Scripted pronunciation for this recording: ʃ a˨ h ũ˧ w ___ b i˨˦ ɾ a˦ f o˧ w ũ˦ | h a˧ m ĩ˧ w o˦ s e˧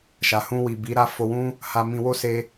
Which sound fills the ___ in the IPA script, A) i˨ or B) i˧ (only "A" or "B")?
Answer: A